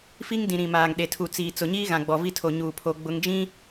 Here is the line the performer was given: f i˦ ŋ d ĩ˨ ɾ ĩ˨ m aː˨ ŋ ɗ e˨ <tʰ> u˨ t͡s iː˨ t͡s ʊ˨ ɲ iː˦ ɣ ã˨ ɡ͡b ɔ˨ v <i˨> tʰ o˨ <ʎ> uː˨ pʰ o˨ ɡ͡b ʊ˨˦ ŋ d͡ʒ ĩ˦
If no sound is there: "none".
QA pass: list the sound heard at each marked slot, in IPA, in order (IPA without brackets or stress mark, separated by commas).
tʰ, i˦, ɲ